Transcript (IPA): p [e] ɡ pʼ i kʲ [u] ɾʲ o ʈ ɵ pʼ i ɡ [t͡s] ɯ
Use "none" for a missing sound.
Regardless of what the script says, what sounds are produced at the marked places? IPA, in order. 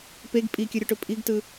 e, ɯ, t

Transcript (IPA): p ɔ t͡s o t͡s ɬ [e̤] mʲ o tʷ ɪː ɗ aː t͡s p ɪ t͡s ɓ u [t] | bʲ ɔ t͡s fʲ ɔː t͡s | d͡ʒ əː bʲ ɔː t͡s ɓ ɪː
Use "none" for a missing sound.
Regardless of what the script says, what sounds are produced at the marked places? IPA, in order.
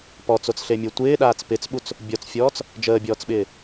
e, t͡s

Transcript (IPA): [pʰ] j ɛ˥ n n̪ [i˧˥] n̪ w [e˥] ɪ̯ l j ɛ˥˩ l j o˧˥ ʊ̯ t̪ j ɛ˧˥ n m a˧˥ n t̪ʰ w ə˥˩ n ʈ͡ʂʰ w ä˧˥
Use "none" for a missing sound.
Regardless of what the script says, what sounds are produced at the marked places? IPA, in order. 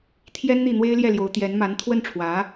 t̪ʰ, i˥˩, e˥

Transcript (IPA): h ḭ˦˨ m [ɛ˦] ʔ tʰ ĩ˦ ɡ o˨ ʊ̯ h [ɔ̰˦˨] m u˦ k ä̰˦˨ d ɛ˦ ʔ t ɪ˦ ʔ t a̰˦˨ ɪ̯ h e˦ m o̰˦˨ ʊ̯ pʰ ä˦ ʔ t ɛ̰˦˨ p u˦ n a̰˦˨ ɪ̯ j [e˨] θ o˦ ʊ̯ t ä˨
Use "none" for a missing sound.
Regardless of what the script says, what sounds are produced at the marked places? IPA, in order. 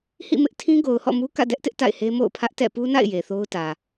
ɪ˦, ɔ̰˦˨, e˨

